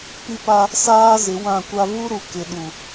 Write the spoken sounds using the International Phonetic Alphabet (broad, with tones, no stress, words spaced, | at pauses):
pi˦pa˦ | saː˦ zɪ˨˦wã˦˨kʷa˦ vu˦ɾu˨ kɪ˨ɗu˨